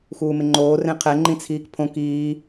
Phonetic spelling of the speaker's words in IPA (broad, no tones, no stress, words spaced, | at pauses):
xuːmɪŋ͡ǃoː rẽqʰɛ ŋ͡ǃĩt͡sʰiːkpʰõ kiː